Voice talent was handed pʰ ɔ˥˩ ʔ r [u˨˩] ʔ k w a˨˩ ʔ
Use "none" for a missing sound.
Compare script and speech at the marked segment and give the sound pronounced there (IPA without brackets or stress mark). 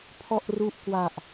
u˦˥